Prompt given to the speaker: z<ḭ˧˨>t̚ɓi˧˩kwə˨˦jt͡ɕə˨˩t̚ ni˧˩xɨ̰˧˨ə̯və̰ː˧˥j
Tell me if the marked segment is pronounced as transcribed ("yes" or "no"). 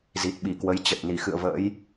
no